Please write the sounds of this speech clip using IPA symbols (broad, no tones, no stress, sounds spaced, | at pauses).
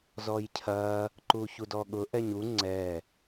z ɔ j cʰ ɐ | ǃ u ç u d ɔ ɠ ʊ ʔ ɛ ɲ u ŋ͡ǀ ɛ